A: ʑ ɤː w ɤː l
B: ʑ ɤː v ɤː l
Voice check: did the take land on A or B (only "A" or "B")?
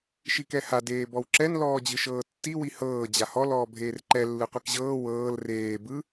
A